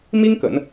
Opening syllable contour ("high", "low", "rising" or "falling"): high